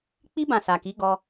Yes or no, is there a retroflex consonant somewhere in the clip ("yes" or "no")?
no